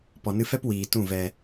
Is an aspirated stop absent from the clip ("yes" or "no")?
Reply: yes